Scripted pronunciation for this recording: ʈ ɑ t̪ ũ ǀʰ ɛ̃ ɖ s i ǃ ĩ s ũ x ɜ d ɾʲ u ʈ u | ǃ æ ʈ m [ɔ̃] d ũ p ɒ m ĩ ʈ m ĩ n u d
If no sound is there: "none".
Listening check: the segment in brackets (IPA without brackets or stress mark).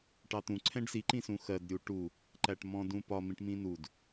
ɔ̃